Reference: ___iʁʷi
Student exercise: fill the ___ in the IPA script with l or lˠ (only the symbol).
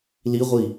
l